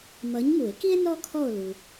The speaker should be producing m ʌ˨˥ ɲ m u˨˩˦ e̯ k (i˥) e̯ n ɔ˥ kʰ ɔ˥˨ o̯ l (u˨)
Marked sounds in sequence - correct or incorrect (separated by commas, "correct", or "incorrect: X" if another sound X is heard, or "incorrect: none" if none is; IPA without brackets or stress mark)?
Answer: correct, correct